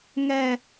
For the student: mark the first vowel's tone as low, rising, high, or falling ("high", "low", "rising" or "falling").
high